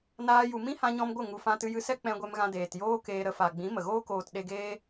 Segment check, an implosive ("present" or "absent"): present